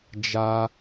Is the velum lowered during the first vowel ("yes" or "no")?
no